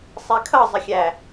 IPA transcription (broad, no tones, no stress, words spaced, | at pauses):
sˤɛkʰʌ zˤəxʲæ